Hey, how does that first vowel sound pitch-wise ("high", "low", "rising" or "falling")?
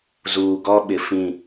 low